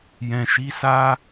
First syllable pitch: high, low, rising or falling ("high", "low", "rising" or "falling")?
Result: low